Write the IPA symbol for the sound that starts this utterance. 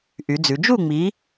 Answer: ʔ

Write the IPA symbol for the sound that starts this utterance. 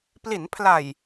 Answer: p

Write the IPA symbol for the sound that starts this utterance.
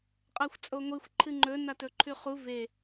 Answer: qʼ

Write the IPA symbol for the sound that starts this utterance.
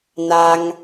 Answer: n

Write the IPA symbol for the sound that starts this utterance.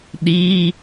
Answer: ɗ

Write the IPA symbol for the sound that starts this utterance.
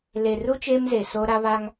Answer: l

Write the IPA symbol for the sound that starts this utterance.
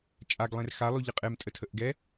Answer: t͡ʃʼ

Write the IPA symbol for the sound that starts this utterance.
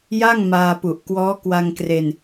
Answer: j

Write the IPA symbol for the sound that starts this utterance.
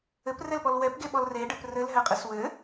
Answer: ɘ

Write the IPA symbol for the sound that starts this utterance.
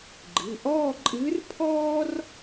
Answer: ɡ͡ǃ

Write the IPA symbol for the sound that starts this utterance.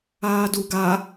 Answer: aː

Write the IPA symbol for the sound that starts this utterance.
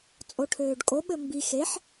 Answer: t͡sʼ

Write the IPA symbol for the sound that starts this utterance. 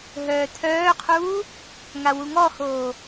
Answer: ɦ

